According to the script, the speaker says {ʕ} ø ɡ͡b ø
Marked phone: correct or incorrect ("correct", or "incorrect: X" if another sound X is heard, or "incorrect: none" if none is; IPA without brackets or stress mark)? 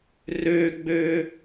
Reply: incorrect: r